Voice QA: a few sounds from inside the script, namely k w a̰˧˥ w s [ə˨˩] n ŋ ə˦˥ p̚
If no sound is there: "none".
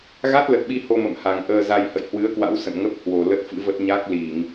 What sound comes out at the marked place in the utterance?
ə̰˧˨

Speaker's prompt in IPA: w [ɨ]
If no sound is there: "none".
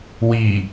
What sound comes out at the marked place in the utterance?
i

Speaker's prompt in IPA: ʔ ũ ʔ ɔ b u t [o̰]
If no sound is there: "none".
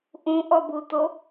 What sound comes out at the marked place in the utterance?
o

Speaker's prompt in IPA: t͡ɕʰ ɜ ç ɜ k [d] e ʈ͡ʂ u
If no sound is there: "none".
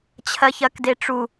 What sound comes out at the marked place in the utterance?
d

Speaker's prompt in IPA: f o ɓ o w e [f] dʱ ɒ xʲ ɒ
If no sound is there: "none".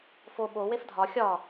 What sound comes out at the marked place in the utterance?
f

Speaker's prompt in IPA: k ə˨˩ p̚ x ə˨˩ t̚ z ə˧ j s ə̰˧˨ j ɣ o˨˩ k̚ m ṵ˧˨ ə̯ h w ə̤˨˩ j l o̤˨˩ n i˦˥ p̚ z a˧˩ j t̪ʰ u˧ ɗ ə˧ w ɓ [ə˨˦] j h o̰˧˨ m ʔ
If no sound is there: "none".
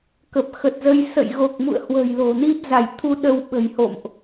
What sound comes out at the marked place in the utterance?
ə̤˨˩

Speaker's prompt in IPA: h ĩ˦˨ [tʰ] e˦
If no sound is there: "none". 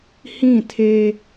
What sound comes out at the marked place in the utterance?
tʰ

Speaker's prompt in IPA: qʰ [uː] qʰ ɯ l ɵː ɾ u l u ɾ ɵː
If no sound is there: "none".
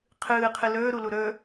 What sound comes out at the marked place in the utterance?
ɯː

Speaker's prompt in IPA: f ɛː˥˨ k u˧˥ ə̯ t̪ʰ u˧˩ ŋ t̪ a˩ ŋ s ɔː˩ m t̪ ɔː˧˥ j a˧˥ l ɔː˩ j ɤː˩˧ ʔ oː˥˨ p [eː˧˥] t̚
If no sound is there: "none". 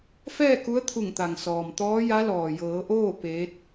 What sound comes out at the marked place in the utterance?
eː˧˥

